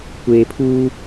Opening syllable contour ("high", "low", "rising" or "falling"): low